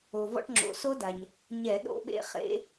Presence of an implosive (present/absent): present